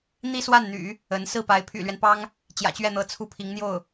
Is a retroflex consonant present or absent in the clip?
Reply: absent